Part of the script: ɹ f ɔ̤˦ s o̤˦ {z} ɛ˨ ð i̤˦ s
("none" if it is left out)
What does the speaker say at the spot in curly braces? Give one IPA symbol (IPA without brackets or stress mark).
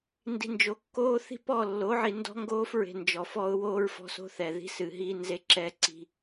θ